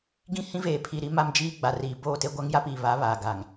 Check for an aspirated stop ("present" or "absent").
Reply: present